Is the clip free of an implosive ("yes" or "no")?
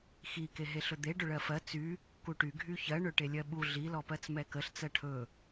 no